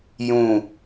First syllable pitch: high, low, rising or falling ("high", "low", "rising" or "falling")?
falling